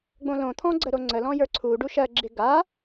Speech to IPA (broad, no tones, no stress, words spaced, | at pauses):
ɡ͡bõlõt̪ʰɔ̃ ɡ͡ǀəɾoŋ͡ǀəlɔ̃ jə˞ǀʰuɖu ʃɜɡ͡ǁɪ ɡa